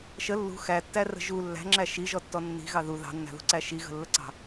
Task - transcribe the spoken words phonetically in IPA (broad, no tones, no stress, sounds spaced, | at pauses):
ʃ ə lː ṳ x æ tː æ r ə̤ ʒ u lː æ̤ ŋ͡ǁ æ ʃ i ʒ ɔ tː ɔ nː i̤ ɣ ɑ ð u ð ɑ̤ nː æ̤ ð ṳ ǀ æ ʃ i ɣ ə̤ lː ə ǀ ɑ̤